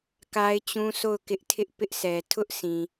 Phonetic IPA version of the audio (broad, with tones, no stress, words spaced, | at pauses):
ka˦ɪ̯t͡ɕũ˦sʰo˦˨ʊ̯ kɪ˦ʔ tʰɪ˦ʔpɪ˦ʔsʰɛ˨ tʰʊ˦ʔ sʰĩ˨